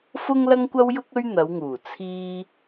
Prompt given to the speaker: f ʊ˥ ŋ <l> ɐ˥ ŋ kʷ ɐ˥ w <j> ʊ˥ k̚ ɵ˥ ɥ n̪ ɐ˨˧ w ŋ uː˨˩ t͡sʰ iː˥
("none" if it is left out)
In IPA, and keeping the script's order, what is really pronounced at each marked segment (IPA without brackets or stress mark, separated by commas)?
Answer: l, j